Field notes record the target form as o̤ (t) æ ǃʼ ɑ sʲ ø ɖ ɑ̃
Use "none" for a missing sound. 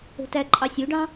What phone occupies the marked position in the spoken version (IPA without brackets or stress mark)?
t